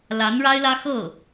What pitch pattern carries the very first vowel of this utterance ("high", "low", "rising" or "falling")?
rising